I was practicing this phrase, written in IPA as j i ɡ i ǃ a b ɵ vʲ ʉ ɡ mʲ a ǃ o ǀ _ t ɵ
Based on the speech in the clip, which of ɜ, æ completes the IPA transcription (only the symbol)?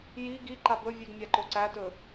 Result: æ